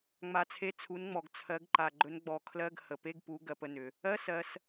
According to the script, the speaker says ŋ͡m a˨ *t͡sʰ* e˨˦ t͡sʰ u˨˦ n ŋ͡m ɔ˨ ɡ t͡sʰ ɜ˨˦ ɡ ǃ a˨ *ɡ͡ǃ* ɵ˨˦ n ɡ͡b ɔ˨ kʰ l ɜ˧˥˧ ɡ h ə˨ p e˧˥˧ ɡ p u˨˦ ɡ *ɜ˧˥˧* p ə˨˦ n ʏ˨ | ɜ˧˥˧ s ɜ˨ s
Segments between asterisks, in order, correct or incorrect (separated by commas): correct, correct, incorrect